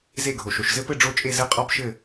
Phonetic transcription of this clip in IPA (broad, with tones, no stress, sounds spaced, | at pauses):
z e˥˨ ɡʱ o˨ ʃ o˨ ʃ z ɘ˥ p ɘ˥˨ ɖ͡ʐ o˥˨ t͡ʃʼ e˥˨ z ɘ˥˨ qʼ ɒ˥ b ʃ ɘ˥˨